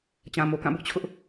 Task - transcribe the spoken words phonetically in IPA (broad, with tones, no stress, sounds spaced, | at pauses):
t͡ɕ ã˨ m o˨ k ã˦˨ b ʊ˦ ʔ t͡ɕʰ ʊ˦ ʔ